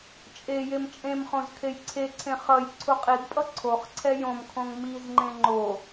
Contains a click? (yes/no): yes